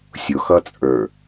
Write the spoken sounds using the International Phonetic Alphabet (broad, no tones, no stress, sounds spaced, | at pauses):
sʲ ʊ x ʌ t͡sʼ ə˞